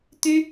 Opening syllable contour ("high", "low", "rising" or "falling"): high